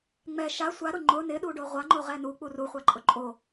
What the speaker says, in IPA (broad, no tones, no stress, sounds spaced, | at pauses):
ŋ͡m ɛ ʃ a sʷ a ɾ ʊ ŋ͡ǃ ʊ n ɪ ɗ u ɖ o ʁʷ a ŋ͡ǃ o ʁ ɛ n u k͡p u r u χʷ a ǃʼ ʊ ǃʼ o